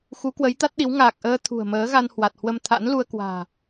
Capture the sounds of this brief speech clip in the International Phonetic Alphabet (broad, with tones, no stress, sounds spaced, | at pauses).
x u˨˦ k w ə˨˦ j t̪ a˦˥ t̚ ɗ i˨˦ w ŋ aː˨˩ k̚ ʔ əː˧ t̪ʰ ṳ˨˩ ə̯ m əː˨˦ ɣ a˧ n h w a˨˩ t̚ h w ə˧ m t̪ʰ a̰˧˥ n l u˧ ə̯ k w a̤ː˨˩